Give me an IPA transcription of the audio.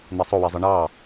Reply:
n̪ i sˤ o w i zˤ ɯ ɳ ɑ

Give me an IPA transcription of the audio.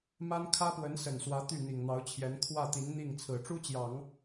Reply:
m a˥ n kʰ ä˥ p w ə˧˥ n s ə˨˩ n s w ä˧˥ t̪ y˥˩ n̪ i˨˩ ŋ n̪ ɑ˧˥ ʊ̯ t͡ɕʰ j ɛ˧˥ n kʰ w ä˥˩ t̪ i˧˥ n n̪ i˥˩ ŋ t͡sʰ ɹ̩˨˩ ʈ͡ʂ u˥ t͡ɕ j ɑ˨˩˦ ŋ

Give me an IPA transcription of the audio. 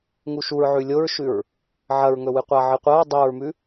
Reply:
ŋ u ʃ u ɹ ʕ ʉ lʲ o ɹ ʃ ʉ ɹ | ʕ ɐ ɹ ŋ ɵ w ɨ qʷ a ʕ ɨ qʷ ɐ ɹ dˤ o ɹ m ʉ

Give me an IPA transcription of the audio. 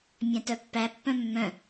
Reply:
mʲ æ̃ t œ pː æ pː œ̃ mː œ̃

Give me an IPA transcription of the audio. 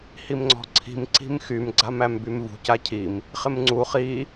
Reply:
h i m ŋ͡ǀ ɔ̤ ǀʰ i̤ m ǀ i̤ m x y m ɡ͡ǀ a m æ m b y m v ṳ c a cʰ i m | χ ɪ m ŋ͡ǀ u χ i

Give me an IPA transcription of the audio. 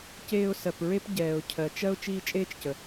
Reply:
c eː˦ ʊ̯ s ɜ˨ p ɹ e˥ p ɟ ɛː˨ ʊ̯ cʰ ɜ˩ t͡ʃ ɜ˦ ʊ̯ t͡ʃ iː˦ t͡ʃʼ eː˥ t͡ʃ c ə˩

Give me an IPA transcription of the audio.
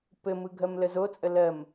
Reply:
p ɘ m ɯ ɡʱ ɜ m l ə z o t͡sʼ ə l ɜ m

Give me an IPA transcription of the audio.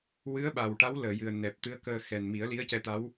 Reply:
w ɨ˧˥ ə̯ ɓ a˨˩ w ʈ a˧˥ w l əː˨˩˨ j ɨ˨˩ ə̯ n ɛ˨˩ p̚ t̪ ɨ˧˥ ə̯ k əː˧ x ɛ˨˩ n m i˨˩˦ ə̯ l i˧˥ ə̯ c ɛ˧˥ t̪ a˧˥ w

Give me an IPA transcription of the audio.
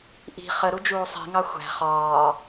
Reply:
ʔ i̤ χ ə ɾ u d͡ʒ uː sˤ i̤ ŋ ɑ xʷ æ̤ χ ɒː

